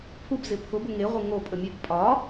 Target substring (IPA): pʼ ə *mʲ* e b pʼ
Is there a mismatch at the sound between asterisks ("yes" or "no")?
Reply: no